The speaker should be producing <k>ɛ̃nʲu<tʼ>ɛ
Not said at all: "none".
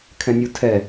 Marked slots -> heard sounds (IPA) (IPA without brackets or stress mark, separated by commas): kʰ, tʰ